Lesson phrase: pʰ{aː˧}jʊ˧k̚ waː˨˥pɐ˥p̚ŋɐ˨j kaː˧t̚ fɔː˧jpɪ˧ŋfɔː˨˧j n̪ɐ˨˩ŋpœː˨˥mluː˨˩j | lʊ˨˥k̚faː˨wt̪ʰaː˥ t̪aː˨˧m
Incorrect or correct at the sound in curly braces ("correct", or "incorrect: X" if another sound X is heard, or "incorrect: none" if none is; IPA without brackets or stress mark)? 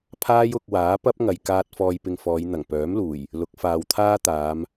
incorrect: aː˥